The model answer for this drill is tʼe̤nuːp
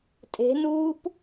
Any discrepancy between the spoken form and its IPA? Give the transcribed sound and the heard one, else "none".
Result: none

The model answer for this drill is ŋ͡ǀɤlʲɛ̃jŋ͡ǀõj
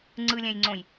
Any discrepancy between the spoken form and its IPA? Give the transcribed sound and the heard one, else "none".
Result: ɤ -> ɯ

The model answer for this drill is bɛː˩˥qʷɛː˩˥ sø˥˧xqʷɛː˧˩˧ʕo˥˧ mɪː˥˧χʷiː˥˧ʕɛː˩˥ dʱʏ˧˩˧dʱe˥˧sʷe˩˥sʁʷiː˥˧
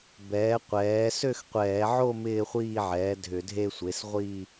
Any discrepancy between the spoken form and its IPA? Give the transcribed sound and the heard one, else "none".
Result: none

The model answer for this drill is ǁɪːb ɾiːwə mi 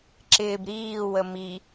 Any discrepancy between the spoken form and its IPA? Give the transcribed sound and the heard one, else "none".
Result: none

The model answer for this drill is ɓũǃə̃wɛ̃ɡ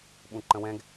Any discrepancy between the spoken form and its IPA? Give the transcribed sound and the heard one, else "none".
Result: none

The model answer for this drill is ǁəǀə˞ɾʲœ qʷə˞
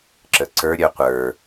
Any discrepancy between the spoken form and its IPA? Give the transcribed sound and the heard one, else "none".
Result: none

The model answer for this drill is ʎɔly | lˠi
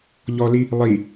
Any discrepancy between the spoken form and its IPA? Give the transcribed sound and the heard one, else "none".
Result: y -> i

